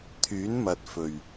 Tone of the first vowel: rising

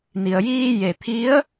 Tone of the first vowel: low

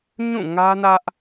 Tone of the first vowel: falling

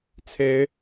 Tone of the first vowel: rising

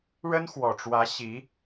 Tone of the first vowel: high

